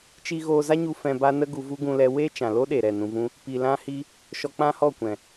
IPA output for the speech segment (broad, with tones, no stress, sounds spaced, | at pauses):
t͡ʃ i˧ ɣ oː˧ z a˦ ɲ u˧ f ɛ̃˧ b a˦ n ə˦ ɡ u˧ v u˦ ɡ ũ˧ l ɛ˧ w eː˦ t͡ʃ ã˨ l o˦ ɗ e˨ ɾ ɛ˦˨ n ũ˧ v ũ˦ | p i˧ l ã˦ h i˦ | ʃ ɔ˧ k͡p ã˦ h ɔ˦˨ kʷ ɛ̃˨